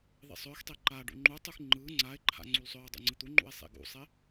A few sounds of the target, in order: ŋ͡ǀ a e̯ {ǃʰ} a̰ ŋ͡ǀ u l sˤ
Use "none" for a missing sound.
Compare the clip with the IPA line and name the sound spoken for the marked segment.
ǃʰ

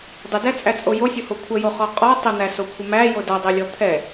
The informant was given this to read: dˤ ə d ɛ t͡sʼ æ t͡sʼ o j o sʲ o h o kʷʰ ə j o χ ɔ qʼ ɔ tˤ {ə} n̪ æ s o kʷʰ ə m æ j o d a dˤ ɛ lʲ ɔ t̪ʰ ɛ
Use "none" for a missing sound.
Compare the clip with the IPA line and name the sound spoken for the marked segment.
ə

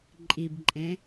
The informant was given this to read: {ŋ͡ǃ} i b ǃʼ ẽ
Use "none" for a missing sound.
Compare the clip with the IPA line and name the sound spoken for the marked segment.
ǃʼ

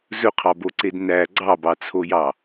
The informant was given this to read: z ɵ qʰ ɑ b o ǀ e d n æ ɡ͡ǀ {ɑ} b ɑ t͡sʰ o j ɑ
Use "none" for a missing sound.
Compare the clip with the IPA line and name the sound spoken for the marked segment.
ɑ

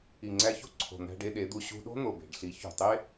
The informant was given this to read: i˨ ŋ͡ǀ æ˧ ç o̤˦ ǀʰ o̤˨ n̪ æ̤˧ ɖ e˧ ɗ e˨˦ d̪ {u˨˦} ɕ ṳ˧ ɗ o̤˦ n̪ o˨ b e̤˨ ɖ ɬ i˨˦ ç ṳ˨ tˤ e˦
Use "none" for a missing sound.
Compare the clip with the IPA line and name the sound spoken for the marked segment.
u˧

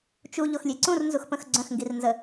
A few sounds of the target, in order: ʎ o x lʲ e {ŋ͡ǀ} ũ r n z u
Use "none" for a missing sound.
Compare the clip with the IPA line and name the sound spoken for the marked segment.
ǀ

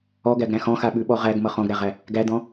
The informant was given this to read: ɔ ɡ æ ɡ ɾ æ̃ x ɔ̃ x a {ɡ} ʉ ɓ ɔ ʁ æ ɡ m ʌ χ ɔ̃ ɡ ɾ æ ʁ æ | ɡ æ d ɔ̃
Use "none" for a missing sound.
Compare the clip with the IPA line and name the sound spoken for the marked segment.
ɓ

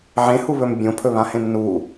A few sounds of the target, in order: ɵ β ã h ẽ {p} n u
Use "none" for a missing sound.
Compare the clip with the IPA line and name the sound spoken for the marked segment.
m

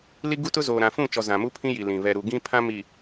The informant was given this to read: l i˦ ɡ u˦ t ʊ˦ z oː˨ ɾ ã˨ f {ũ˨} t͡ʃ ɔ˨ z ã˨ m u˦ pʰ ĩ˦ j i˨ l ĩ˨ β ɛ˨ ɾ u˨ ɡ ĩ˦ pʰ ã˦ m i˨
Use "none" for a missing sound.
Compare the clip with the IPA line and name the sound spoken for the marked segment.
ũ˦˨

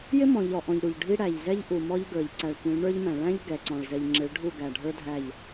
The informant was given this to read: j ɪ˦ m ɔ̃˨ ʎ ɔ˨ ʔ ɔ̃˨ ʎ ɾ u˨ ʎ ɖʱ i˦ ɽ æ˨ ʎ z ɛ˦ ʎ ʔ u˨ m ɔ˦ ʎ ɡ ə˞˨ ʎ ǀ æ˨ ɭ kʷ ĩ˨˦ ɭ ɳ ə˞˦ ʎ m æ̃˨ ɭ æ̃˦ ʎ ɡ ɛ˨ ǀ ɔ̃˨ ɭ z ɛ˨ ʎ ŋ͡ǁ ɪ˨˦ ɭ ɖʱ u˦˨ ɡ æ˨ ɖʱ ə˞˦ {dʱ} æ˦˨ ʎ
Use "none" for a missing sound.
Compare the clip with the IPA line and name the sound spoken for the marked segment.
dʱ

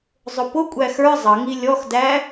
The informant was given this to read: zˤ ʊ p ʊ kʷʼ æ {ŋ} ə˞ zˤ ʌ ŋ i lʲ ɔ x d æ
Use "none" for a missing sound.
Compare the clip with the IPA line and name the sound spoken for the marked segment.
x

